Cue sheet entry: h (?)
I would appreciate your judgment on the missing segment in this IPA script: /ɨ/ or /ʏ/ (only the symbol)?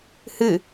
ɨ